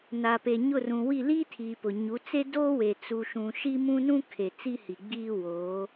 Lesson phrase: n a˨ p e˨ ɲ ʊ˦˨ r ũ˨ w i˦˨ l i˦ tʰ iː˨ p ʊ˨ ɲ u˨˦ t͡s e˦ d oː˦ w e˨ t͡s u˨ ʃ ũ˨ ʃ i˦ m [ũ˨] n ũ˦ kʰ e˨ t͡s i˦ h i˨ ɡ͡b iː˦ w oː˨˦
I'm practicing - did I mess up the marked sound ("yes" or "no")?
yes